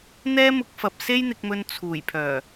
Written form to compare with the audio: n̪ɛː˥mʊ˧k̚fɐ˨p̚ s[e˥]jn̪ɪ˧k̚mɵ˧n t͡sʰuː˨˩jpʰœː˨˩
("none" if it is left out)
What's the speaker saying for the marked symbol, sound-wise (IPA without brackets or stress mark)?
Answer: e˥